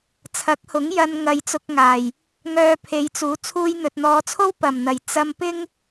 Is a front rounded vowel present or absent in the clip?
present